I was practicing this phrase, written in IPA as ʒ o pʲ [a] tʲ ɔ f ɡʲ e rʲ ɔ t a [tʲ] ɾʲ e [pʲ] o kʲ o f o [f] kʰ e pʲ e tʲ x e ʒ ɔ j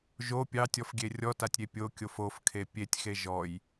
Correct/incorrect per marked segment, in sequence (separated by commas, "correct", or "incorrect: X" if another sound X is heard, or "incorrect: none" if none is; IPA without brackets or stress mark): incorrect: ɑ, correct, correct, correct